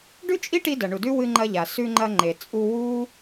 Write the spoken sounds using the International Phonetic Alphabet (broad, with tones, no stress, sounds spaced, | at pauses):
ɖ ʉ˥ t͡ʃʼ i˥ ʈ i˧ d ɐ˩ ɳ u˩ d ʉ˥ w ɨ˧ ŋ͡ǃ ɐ˧ ʎ a˩ s ʉ˧ ŋ͡ǃ ɐ˧ ŋ͡ǃ e˩ t͡sʼ u˧ w uː˥